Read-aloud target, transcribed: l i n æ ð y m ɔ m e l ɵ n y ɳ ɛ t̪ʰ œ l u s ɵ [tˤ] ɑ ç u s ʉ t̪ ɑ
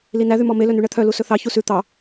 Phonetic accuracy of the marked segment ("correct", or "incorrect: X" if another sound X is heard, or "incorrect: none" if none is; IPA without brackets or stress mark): incorrect: θ